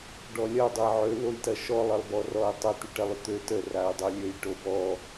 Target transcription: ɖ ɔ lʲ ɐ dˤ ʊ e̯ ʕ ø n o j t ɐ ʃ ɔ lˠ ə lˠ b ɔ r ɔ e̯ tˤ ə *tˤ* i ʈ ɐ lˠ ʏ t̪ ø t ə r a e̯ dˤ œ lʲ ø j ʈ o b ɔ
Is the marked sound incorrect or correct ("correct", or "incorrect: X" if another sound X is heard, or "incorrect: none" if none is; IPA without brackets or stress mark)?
incorrect: t̪